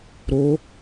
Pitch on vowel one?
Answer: rising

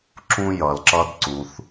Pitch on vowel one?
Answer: high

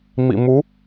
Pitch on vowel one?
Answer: low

